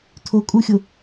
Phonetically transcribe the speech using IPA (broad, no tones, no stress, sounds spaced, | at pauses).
tʰ o kʼ u xʲ o